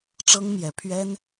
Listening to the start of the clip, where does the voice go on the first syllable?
high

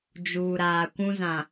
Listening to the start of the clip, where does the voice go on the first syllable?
low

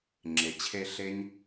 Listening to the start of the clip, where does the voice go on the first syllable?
low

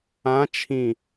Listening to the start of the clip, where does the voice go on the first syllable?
rising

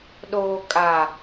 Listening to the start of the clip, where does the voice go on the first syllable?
low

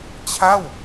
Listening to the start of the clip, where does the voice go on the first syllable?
falling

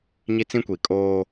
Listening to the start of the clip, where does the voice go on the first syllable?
high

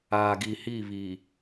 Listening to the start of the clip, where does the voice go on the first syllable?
low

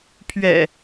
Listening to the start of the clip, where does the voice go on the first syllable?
low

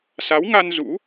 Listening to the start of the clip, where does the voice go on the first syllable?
rising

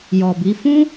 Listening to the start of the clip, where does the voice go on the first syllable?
low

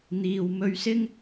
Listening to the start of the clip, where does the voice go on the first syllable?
low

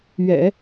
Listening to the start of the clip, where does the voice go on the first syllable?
low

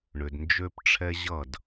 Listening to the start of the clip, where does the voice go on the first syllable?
low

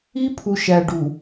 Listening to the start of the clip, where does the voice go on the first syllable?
high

